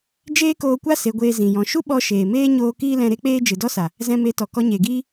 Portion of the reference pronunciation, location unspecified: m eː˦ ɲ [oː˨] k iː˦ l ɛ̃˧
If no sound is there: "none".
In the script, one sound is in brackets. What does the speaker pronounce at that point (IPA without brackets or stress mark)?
oː˧